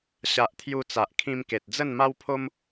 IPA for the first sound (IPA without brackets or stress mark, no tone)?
ɕ